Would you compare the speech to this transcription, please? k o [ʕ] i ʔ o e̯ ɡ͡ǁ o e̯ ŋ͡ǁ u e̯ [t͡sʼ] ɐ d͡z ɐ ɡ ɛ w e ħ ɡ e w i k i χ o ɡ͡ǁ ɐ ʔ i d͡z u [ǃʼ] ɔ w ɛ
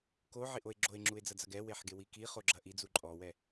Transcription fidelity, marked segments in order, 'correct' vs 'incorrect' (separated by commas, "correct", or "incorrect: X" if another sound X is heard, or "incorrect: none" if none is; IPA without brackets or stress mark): correct, incorrect: d͡z, correct